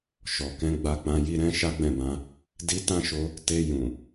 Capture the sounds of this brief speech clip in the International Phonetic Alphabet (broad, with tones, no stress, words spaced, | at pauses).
ʃɔ˨kɛ̃˧ ɡ͡ba˧k͡pã˧ ji˦ ɾɛ̃˦ ʃa˦ɡ͡bɛ̃˦˨bã˧ | di˦ tã˦ʃo˧ | te˧ jũ˨